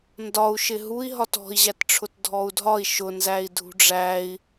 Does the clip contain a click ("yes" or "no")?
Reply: no